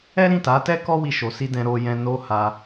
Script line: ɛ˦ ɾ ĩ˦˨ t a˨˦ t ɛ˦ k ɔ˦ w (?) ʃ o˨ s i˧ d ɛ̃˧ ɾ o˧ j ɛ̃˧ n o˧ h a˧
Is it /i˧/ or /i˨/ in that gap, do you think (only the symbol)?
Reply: i˧